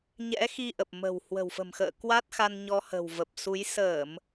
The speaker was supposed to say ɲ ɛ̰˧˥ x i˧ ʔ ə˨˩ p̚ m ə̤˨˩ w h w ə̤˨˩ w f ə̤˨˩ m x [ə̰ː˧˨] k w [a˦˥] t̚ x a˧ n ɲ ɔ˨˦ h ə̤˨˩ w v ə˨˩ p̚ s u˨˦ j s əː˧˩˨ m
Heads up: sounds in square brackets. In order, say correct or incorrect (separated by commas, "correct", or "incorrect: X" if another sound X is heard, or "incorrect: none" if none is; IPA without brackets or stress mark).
correct, correct